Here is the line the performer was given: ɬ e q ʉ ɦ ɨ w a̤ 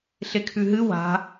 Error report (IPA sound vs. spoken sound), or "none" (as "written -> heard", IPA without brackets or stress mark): q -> kʰ